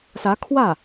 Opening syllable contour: rising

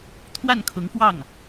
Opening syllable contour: falling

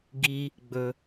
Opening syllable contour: low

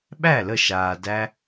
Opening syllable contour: falling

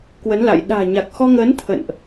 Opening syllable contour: rising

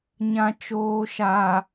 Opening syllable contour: low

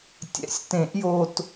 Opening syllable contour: rising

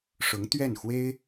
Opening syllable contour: rising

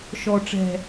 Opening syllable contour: low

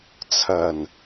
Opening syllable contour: low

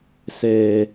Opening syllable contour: low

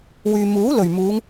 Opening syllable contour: low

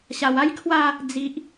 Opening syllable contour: low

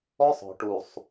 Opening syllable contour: high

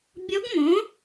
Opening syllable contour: rising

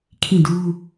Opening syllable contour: falling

